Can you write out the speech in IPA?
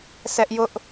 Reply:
sɛ˦ʔjʊ˦ʔ

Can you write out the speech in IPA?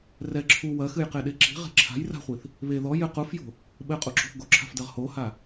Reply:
rɛ ǁʰu wɐxɨjqeɗe ǁi̤ʁe̤ ǁʰa̤j ra̤χʷiθ | βe ðɔ jɘ qufjo̤ | ɓɘqʼuǁo̤θ ɡoǁʰa̤fdɘʁ hoha

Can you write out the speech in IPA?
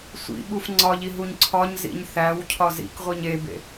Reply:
sʷḭɓuf ŋ͡ǀɒʎiɦuɲ ǀʰɒɲzḭɲ θæwcʰɒ zḭkʁʷiɲ ebḛ

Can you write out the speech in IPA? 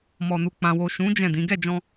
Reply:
mɔ˨nu˨k͡pã˨ wo˨ʃũ˨˦ d͡ʒɛ̃˦˨ dĩ˨˦ ɡɛ˦˨d͡ʒɔ̃˧

